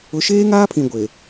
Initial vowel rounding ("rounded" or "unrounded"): rounded